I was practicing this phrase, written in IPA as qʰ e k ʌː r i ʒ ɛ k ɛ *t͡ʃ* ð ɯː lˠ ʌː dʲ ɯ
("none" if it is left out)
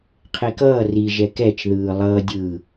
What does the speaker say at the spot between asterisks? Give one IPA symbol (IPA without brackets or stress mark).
t͡ʃ